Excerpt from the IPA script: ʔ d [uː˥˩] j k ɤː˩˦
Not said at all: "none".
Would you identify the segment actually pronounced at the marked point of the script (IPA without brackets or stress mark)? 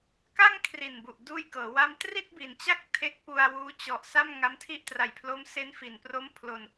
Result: uː˥˩